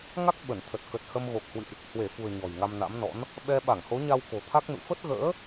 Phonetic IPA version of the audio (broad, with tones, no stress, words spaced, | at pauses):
ŋa˦˥k̚ ɓə˧˩nt̪ʰə˨˩t̚ kə˨˩t̚hə˧mɣo˨˩k̚hwɨ̰˧˨ʔ | hwe˧˩fṳ˨˩ə̯ ɲɔ̤˨˩jŋa˧mna̰˧˥mnɔ̰˧˥n | ɓɛ˧ ɓa˧˩ŋho˨˦ɲa˧w ko̤˨˩t̪ʰa˦˥k̚nṵ˧˨ fə˦˥t̚ɣə̰ː˧˥